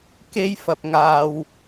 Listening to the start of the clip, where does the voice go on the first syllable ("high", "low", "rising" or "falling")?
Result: high